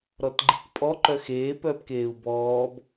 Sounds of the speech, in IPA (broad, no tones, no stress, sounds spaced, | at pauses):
ɾ ɔ t ɡ͡ǃ i k pʼ ɔ ǃ œ x eː p œː p k eː u̯ b ɔː b